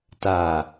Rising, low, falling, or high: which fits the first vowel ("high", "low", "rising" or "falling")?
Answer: low